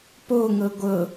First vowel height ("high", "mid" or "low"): mid